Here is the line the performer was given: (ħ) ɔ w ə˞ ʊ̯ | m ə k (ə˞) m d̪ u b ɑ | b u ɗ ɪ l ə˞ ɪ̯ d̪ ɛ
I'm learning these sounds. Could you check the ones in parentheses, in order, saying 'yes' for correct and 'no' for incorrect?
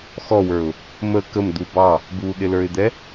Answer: no, no

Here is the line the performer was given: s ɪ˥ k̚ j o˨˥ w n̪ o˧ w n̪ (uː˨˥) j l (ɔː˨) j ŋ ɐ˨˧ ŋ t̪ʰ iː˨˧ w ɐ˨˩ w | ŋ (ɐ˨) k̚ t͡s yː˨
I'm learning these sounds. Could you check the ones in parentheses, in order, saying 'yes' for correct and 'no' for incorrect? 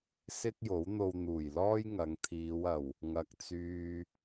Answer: no, no, yes

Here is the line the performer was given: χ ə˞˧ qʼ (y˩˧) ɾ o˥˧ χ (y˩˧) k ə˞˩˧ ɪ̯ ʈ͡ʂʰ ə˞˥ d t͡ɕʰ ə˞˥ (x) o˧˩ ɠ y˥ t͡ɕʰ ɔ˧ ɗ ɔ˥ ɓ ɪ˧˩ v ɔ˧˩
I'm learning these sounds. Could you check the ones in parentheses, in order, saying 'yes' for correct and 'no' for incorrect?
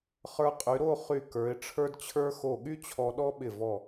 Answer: yes, no, yes

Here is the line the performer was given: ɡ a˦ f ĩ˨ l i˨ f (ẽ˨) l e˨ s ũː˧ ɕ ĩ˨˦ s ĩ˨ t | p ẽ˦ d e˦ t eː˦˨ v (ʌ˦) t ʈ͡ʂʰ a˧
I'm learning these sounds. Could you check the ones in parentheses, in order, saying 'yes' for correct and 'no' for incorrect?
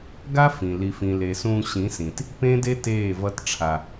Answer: no, yes

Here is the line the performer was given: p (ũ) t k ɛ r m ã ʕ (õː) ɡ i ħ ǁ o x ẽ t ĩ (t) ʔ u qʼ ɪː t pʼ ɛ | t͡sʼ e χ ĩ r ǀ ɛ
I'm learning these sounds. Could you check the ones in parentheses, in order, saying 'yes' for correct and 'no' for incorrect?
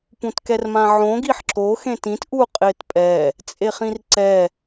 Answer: yes, no, yes

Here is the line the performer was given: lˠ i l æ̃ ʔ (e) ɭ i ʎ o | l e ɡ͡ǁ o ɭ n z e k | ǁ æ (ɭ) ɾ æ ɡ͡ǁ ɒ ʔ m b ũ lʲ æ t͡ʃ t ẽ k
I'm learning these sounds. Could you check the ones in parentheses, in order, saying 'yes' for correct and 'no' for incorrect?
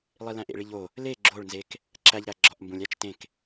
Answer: no, no

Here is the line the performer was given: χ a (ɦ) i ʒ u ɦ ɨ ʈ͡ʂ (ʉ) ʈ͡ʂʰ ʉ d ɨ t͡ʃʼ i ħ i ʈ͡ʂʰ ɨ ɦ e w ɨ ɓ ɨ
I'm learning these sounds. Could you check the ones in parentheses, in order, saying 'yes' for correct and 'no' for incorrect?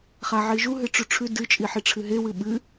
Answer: no, yes

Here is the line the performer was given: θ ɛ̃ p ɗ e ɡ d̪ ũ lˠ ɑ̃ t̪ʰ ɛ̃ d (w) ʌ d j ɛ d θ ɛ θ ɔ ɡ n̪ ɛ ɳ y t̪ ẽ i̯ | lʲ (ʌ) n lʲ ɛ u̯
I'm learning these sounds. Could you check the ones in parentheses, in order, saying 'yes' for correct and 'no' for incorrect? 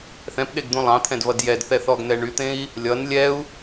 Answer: no, yes

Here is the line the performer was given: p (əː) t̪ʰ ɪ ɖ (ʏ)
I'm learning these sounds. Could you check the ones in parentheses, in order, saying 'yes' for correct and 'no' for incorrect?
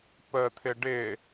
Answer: yes, no

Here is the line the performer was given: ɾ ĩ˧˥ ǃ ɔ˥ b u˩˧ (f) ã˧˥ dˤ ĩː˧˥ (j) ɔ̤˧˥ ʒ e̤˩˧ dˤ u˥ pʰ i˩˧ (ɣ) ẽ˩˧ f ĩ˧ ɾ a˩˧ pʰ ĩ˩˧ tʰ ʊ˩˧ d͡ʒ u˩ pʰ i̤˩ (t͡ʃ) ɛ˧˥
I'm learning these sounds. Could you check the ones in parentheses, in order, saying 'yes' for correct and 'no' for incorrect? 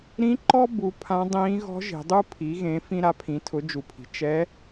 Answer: no, no, yes, yes

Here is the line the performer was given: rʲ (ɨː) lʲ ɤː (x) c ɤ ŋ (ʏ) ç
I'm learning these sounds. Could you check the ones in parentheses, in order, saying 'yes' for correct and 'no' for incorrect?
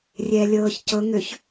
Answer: no, no, yes

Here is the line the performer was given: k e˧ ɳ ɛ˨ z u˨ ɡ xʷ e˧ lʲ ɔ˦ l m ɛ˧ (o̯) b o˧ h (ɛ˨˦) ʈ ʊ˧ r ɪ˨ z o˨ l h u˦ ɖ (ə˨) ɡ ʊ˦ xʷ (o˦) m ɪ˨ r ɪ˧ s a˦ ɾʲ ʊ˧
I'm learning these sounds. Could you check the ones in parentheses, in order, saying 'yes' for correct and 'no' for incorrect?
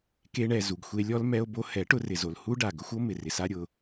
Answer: yes, yes, no, yes

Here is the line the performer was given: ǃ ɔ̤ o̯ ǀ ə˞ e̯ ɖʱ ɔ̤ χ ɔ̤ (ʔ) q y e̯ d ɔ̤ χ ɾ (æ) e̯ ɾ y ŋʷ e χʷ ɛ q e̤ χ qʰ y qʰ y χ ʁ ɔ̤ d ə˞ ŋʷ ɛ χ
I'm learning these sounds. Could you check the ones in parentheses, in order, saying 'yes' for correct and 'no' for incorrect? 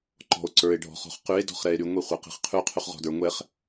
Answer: no, no

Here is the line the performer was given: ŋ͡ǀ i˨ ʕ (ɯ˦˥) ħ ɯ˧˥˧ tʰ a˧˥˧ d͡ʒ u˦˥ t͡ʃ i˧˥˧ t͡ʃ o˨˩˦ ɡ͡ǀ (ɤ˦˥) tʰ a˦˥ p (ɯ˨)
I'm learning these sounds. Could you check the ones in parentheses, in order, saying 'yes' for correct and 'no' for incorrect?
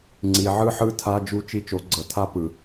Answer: yes, no, yes

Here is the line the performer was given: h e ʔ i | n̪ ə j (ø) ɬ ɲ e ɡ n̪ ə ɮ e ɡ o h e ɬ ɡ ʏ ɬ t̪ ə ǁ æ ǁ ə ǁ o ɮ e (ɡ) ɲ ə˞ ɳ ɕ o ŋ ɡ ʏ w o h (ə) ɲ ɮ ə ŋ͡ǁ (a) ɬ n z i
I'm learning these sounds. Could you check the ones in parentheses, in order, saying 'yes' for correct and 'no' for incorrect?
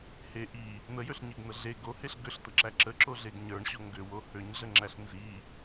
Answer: yes, yes, no, no

